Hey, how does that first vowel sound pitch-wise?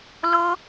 high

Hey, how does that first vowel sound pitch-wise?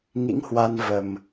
rising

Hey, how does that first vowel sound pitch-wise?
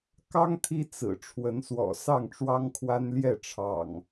high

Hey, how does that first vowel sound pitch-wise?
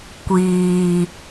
low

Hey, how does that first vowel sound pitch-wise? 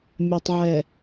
low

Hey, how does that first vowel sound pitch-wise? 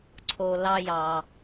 low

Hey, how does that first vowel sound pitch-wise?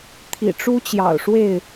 low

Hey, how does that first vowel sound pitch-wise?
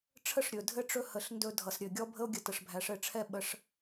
falling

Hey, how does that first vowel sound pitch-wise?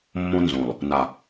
high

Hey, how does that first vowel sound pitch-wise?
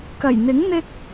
low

